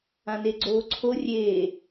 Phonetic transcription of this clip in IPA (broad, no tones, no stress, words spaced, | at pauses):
ãneɡ͡ǀoːǀʰo rʲe